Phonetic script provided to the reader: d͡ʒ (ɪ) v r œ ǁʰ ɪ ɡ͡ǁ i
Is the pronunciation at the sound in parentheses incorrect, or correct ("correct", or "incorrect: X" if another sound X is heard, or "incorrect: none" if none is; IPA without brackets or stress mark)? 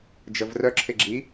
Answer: incorrect: ə